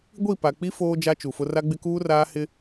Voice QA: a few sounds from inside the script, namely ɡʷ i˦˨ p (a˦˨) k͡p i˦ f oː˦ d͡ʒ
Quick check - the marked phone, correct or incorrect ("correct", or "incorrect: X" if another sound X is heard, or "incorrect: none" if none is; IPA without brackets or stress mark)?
incorrect: a˨